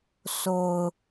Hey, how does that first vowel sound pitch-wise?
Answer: low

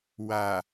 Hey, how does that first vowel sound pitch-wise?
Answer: low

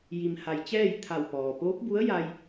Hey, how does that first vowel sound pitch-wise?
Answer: low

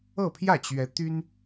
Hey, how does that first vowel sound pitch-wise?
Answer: falling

